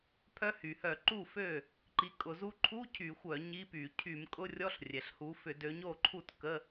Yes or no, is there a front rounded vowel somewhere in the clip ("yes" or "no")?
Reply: yes